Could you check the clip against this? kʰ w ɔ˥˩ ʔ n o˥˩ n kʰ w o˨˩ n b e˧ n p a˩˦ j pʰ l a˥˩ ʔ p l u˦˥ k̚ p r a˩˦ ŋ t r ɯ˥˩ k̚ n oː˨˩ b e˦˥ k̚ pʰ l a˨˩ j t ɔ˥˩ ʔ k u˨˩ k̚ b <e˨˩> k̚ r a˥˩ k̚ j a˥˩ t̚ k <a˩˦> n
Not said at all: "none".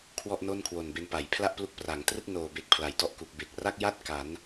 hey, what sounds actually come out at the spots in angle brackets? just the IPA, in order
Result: e˨˩, a˩˦

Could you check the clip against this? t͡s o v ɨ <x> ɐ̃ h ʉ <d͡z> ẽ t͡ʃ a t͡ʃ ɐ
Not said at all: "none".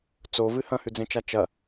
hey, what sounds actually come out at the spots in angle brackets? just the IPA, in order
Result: h, d͡z

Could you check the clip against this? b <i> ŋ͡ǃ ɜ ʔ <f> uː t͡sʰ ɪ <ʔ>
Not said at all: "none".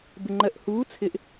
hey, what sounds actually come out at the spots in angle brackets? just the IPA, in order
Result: ɪ, h, ʔ

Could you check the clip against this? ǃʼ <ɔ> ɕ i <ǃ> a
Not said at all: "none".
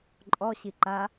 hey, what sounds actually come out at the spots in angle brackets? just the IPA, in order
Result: ɔ, ǃ

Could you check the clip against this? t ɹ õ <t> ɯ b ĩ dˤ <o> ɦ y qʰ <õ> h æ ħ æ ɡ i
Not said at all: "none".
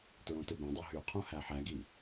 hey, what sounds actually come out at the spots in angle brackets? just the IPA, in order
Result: t, o, õ

